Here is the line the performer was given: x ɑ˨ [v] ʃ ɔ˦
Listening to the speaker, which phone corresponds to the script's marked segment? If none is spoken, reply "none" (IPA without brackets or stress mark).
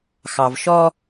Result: v